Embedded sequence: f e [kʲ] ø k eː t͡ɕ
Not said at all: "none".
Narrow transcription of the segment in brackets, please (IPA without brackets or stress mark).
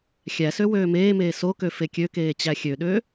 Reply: kʲ